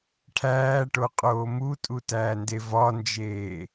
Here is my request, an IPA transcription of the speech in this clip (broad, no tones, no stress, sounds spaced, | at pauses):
ʈʰ æː ʈ o qʼ oː m u tʼ u t æː n d e v ɒ n d͡ʒ eː